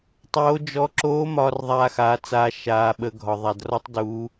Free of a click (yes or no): no